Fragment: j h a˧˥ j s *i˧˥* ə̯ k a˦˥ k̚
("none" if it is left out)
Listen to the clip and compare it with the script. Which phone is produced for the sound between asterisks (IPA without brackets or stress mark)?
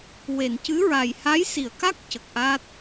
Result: i˨˩˨